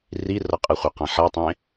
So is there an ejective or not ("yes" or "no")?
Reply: yes